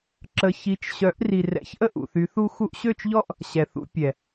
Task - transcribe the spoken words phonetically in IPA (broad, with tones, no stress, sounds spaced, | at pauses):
ǁ ə˧ ç i˨˦ t͡ʃ ɕ œ˨˦ ʔ r i˨ r ɛ̰˨˦ ç ʔ ə˦ ʔ ṵ˨ θ y˨˦ θ u˦ x u˧ ʔ ɕ ø˦˨ t͡ʃ ʎ ɔ˦ ʔ | ɕ ɛ˨ θ ṵ˧ pʲ ɛ˨